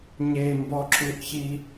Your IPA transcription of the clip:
ɲ e m b ɔ ǁ u ʔ ç i

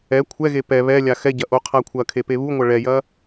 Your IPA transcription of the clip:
ɛ kʷʰ ɛ ɣ e p ɛ β ɛ lʲ a x ɛ ɟ ɐ ʔ o qʰ a kʷʰ ɐ kʰ e p e β u ŋʷ ɐ ɭ ɛ j ɐ

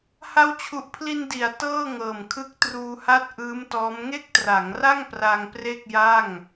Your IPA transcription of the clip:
h a˦˥ w t͡ɕʰ u˨˩ ʔ pʰ l i˧ n d i˩˦ a̯ t ɤː˥˩ ŋ ɤː˨˩ m kʰ ɯ˦˥ k̚ t r uː˧ h a˥˩ t̚ ʔ ɯː˦˥ m t ɔː˦˥ m ŋ e˥˩ k̚ t r a˩˦ ŋ r a˥˩ ŋ p r a˧ ŋ p r e˥˩ k̚ j a˥˩ ŋ

